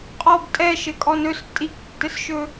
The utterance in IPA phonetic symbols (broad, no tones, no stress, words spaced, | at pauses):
qʼɔb tʼɛ ʃɘkʼɔnɵs tʼiktːɘsʃɵ